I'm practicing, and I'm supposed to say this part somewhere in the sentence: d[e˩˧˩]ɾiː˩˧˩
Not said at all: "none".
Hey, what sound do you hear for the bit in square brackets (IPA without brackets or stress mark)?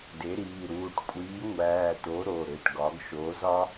e˩˥